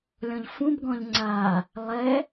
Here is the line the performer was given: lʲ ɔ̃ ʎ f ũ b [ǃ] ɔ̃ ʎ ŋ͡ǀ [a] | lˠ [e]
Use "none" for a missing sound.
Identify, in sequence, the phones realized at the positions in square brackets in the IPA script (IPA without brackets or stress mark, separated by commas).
ɡ, a, ɛ